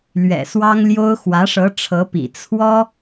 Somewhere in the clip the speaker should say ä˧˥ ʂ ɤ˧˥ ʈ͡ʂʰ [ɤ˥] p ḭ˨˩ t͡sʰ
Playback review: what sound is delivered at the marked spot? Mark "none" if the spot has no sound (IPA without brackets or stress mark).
ɤ˧˥